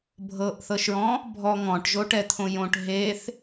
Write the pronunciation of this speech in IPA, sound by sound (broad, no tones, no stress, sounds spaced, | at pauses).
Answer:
bʱ ɤ ʔ θ ɤ ʃ ɹ ɔ̃ | bʱ ɔ ŋ ɔ̃ ʈ ʒ o ʈ ɛ t̪ʰ õ j õ ʈ ɦ e θ